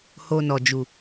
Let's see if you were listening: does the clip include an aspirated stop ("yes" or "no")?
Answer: no